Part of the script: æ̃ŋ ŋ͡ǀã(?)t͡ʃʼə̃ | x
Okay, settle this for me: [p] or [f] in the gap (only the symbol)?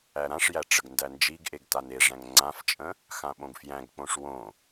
f